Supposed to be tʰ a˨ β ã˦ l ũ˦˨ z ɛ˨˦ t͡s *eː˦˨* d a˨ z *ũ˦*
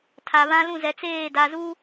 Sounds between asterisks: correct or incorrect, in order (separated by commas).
correct, incorrect